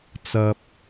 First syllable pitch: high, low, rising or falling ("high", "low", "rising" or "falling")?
high